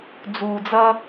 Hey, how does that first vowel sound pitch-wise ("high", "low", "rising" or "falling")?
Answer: low